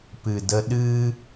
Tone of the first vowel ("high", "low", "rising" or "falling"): low